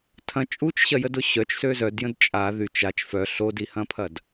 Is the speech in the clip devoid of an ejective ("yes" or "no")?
no